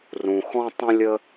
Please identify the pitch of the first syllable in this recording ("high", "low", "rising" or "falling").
low